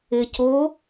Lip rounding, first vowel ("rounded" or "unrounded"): unrounded